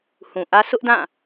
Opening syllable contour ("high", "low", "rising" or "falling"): low